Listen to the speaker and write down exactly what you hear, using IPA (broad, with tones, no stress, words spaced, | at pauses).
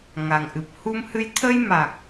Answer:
ŋa˨˩ŋʔɨ˨˩p̚hu˧mhɨ˧j t̪ʰə˧jma˨˩k̚